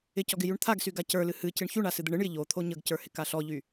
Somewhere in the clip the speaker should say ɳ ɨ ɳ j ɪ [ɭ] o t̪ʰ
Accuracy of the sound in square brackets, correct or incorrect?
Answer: incorrect